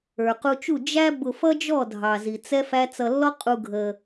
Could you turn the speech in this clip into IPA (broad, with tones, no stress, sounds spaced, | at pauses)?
ə˞˨ q u˧ t͡ʃ u˦˨ d͡ʒ æ˦ b ʊ˧ f ʌ˦ d͡ʒ ɔ˦˨ dʱ ɑ˨ z i˨ t͡s ɛ˦ f æ˦ t͡s ʌ˧ lː ɔ˦ qʼ u˧ ɡʱ ə˧